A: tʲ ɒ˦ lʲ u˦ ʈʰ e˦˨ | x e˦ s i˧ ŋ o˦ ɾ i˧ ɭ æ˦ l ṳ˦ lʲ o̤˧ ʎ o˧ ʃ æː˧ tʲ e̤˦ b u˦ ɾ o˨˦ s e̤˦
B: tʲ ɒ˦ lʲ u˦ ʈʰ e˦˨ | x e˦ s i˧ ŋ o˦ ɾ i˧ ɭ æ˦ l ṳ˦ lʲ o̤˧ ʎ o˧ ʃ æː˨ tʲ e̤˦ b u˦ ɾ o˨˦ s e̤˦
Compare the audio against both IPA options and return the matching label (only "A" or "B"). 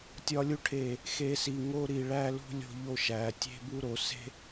B